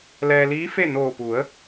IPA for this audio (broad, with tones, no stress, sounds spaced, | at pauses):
l ɛː˧ l iː˧˥ f e˥˨ n oː˧˩ p u˩˧ ə̯